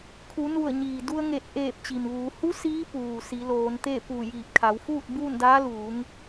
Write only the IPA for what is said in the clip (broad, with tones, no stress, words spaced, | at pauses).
kʰu˩˧nu˧˩ə̯ɲiː˩du˧ə̯ ŋe˧˩t̚ʔeː˧˩p̚ t͡ɕi˩mʋuː˩˧ hu˧˥ siː˧˥puː˩ si˩˧loː˩˧nt̪e˥˨pu˧˩ jiː˧˩p̚kʰa˩˧wfuː˥˨t̚ buː˥˨ndaː˧˥ luː˩˧ŋ